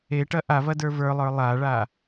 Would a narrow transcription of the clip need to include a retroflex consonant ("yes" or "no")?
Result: yes